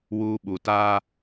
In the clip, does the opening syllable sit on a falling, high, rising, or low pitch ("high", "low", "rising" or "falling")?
high